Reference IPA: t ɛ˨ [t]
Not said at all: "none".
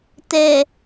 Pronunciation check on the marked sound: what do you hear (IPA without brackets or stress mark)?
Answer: none